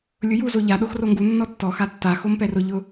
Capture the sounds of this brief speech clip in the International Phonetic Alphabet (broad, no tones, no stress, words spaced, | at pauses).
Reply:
lʲʊju zoʎa ɗoxroŋɡu nːɔtːɔ xatːa xompɛrʊ ʎʊ